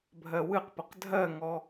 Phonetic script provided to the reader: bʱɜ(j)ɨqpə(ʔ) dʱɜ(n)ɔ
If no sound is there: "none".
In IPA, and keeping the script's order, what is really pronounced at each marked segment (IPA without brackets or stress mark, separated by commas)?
w, q, ŋ